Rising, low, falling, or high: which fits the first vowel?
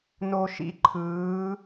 low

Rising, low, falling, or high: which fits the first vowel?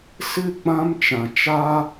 falling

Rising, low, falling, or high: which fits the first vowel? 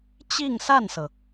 falling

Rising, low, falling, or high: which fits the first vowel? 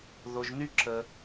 low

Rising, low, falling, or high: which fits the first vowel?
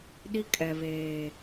high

